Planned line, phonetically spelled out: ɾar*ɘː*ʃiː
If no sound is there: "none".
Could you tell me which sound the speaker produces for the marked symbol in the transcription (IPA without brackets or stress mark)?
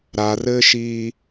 ɘː